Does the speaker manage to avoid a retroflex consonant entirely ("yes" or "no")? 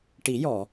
no